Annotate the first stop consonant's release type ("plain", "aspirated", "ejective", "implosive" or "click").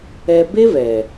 plain